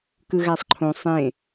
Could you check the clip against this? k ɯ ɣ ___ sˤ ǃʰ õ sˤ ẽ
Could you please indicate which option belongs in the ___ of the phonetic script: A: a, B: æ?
B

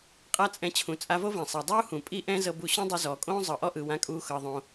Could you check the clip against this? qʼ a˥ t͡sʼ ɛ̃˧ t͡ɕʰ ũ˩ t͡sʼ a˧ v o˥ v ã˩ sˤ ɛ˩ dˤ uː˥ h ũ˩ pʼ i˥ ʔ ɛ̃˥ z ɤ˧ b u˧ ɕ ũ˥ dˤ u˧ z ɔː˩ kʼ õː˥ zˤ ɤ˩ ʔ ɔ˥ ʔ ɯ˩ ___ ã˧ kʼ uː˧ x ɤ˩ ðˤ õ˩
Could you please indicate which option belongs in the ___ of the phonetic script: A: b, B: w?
B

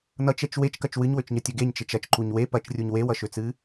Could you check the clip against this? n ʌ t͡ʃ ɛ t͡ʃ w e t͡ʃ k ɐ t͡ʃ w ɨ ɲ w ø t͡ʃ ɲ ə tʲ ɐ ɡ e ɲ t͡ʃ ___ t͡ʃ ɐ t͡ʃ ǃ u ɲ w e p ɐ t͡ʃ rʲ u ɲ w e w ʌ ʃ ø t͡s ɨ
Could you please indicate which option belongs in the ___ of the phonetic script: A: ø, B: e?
B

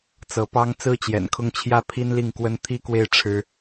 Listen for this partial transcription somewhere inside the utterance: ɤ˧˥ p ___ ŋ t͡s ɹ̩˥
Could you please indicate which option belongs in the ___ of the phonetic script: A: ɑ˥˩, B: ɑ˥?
B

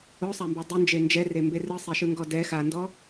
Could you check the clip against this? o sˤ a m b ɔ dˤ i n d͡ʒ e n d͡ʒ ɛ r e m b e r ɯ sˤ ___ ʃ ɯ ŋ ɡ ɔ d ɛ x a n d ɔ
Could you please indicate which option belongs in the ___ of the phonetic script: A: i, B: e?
B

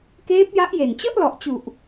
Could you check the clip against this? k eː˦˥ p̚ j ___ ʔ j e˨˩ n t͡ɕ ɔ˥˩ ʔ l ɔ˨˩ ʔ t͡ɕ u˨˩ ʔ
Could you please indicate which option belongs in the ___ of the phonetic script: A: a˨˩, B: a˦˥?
B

